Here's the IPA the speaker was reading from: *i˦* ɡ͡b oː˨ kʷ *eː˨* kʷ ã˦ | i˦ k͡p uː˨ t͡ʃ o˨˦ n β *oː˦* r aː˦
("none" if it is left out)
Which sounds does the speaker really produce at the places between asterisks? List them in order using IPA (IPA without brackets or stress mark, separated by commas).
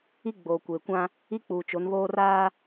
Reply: i˦, eː˨, oː˦